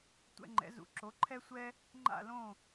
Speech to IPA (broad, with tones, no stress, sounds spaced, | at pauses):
tʷ ɛ̰˧ ŋ͡ǃ ɛ̰˩˥ z ṵ˩˥ ǁ o˩˥ ǃʰ ɛ˥ sʷ ɛ˥ | ŋ͡ǃ a̰˥˩ l õ˥˩